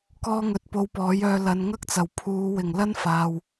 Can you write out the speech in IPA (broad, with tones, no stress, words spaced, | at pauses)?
kɔː˧ŋɵ˨t̚ po˧wpɔː˨˥jœː˧ lɐ˨˧nŋɐ˥k̚t͡sɐ˨˩w pʰuː˨˧wɪ˨˩ŋ lɐ˥n faː˨w